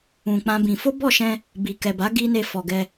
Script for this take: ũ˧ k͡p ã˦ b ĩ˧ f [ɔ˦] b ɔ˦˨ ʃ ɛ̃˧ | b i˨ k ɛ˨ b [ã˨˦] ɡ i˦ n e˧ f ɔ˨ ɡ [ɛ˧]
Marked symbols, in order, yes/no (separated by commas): no, no, yes